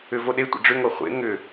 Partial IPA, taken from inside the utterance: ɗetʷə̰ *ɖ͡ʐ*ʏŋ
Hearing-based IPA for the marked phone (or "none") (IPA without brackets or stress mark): ɖ͡ʐ